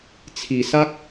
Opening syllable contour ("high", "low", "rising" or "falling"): low